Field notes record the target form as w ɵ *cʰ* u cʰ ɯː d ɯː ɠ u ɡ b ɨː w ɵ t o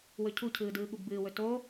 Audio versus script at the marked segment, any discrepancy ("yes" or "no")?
no